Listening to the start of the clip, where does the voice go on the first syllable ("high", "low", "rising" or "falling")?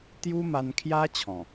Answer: high